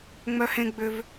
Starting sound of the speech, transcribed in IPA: ŋ͡m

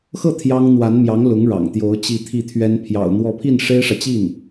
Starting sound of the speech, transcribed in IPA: x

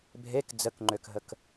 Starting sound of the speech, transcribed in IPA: bʱ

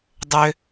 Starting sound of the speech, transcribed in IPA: dˤ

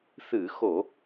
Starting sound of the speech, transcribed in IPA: θ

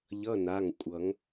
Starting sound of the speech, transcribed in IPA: ʎ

